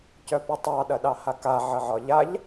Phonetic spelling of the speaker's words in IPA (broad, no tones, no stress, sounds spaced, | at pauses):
c œ p ə tˤ ɑ ɗ ɐ ɗ ɑ h a k a ʕ ə ʕ ɒ ʎ a ʎ